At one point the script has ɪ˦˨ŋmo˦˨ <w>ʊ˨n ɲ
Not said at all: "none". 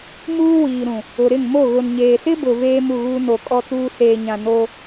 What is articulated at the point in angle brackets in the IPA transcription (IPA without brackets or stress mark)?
ɣ